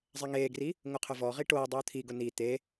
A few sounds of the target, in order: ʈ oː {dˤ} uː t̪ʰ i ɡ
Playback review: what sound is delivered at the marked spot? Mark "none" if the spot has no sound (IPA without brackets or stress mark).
dˤ